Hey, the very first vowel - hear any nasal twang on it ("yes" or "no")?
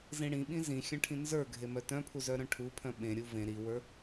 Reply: yes